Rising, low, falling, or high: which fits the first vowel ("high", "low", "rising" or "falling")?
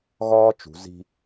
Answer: high